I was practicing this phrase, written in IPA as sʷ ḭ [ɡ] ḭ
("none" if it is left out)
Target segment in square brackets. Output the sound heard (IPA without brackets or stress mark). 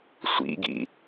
ɡ